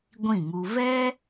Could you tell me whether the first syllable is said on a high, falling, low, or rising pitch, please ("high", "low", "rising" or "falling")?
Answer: falling